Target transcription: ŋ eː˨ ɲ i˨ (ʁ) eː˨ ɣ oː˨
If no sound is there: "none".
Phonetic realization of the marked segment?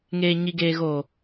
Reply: ɡ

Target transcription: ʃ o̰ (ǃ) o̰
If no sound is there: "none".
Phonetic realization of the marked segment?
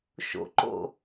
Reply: ǃ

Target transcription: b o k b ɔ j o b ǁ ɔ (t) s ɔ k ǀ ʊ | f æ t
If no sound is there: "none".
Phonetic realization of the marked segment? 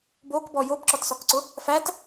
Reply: t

